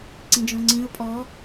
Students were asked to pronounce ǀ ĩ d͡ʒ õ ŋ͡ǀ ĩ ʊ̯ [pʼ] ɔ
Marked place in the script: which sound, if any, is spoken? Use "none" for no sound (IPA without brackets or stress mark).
pʼ